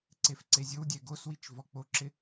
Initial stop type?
click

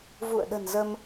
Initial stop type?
implosive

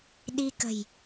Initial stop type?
implosive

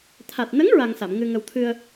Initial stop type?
aspirated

